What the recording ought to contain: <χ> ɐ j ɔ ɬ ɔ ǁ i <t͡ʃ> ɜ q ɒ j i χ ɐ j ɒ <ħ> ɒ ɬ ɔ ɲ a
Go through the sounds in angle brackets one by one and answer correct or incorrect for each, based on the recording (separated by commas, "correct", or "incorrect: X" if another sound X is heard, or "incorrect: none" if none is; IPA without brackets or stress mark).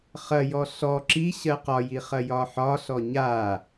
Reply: correct, incorrect: ɕ, correct